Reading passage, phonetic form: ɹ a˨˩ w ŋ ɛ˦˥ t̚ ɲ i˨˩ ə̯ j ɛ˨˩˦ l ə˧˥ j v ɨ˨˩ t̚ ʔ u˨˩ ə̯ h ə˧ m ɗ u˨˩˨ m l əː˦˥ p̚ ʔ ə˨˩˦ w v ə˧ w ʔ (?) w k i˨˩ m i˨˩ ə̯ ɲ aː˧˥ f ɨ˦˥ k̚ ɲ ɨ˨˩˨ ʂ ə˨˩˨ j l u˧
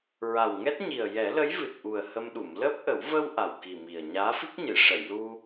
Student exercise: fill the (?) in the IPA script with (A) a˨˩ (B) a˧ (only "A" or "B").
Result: A